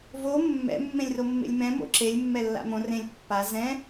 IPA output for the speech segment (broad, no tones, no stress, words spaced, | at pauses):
vo mːɛ̰ mːẽlʲromːḛlʲmɛ̃ mo̰ǁelʲ mːɛlːa̰mõ rẽlʲ pːa zɛ̃